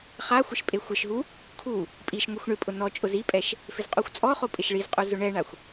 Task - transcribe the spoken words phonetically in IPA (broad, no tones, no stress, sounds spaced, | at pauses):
χ a xʷ ɪ ʃ pʼ e xʷ ɪ ʃ ɦ u | kʰ u | pʼ i ʃ ŋʷ i xʷ ɳ ɪ pʼ ʊ n ɔ t͡ʃʼ ʊ z i pʼ ɛ ʃ | f ɪ z qʼ u xʷ t͡sʼ ɔ χ o pʼ ɪ ʃ ɭ i z qʼ u z ʊ ɳ ɛ ɳ a xʷ